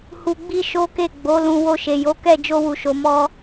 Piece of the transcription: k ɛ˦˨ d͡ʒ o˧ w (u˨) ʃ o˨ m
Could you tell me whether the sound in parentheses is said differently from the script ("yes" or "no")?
no